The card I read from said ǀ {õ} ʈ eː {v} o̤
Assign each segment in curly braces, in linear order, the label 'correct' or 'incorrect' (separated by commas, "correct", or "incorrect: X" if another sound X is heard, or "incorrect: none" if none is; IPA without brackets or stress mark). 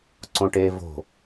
correct, correct